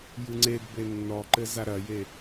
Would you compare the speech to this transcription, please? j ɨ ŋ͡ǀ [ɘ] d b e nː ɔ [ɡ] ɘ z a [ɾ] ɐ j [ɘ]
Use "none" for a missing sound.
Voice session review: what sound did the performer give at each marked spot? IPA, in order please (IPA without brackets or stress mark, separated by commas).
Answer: e, ǃ, ɾ, e